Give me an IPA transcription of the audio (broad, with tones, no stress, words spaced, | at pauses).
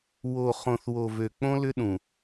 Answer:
wo˨ χõ˨θwo˨vø˨ k͡põ˦lʏ˦ɗũ˨